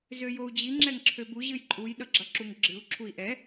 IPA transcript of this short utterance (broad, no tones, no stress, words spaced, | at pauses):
zøjou̯d͡ʑi ŋ͡ǁɛŋǁʰøbu ʑɨjǃʼuj ɗʌɡ͡ǁʌǁuŋɡ͡ǁɨu̯ ǁʰui̯ʔɛ